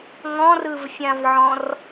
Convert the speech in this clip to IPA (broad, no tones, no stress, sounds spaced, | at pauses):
ŋ ɔ̃ r ɯ v fʲ ã v ʕ ɔ̃ r